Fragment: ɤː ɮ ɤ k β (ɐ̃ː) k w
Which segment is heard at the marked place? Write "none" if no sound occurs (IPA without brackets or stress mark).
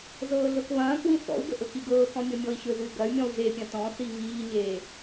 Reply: ɐ̃ː